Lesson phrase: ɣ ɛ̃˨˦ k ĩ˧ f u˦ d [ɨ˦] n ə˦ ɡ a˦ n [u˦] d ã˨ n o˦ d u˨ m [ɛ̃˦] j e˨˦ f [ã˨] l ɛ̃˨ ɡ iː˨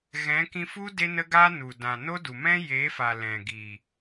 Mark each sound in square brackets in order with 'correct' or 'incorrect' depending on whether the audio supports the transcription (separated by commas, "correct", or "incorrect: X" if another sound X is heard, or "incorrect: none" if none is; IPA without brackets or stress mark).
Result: incorrect: e˦, incorrect: u˨, correct, incorrect: a˨